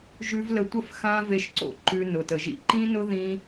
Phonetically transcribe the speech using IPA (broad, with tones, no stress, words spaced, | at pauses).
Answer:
ʒʉ˧v lə˧tʷə˦˨f xã˦ ve˧ʃǀo̰˦ ǃʉ˧ nʊ˨tə˨ʒḭ˦ ǃĩ˦nʊ˦ ðĩ˦